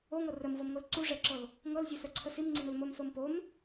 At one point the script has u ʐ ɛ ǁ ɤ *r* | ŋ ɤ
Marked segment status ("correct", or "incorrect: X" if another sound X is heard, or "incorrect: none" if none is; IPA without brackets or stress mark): incorrect: l